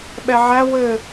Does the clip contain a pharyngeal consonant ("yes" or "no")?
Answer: yes